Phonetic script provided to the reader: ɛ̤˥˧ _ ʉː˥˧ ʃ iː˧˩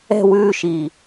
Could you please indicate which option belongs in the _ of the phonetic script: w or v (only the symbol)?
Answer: w